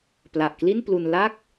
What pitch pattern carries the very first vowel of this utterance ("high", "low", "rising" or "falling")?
low